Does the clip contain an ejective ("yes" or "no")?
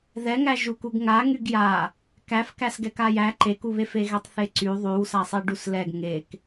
no